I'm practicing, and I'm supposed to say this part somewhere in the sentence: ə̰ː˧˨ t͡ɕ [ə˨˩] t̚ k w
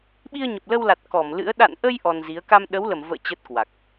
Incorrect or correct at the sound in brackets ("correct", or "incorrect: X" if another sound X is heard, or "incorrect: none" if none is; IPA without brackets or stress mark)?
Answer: incorrect: ə˦˥